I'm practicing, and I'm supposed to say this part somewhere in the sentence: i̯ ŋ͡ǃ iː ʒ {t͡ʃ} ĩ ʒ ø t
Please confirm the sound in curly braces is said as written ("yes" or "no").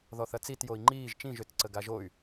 yes